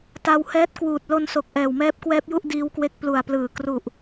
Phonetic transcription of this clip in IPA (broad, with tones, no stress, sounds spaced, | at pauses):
t a˧ w h ɛː˦˥ t̚ k w uː˨˩ t̚ l o˧ n s o˨˩ k̚ ʔ ɛː˨˩ w m ɛː˦˥ p̚ k w ɛː˦˥ p̚ j u˥˩ ʔ d iː˦˥ w k w e˥˩ k̚ p l u˨˩ a̯ p l ɯː˨˩ k r u˨˩ ʔ